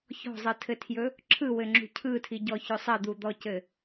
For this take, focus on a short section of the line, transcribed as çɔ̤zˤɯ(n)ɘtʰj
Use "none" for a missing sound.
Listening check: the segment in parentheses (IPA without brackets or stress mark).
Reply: tʰ